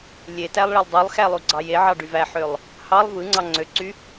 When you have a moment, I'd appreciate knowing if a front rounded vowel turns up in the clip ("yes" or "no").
yes